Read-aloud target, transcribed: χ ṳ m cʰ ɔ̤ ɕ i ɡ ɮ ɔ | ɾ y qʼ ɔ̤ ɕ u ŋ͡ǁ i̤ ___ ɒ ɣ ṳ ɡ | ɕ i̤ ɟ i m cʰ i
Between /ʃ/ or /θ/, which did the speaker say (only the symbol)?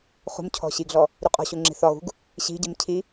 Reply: θ